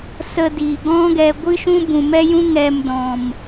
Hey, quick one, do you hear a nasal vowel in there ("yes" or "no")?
yes